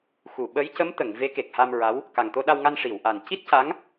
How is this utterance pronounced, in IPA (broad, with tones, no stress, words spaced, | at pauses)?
xu˨˩˨ɓə˧˥j cə˧˥mt̪ə˨˩˨ŋ ve˧˥ke˨˩k̚ha˧mɹa˧˥w | ka˨˩ŋt̪o˧ɗa˧wŋa˧n ʂi˨˩˨wʔa˨˩n ci˦˥t̚ca˧˥ŋ